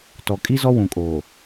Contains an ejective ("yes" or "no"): yes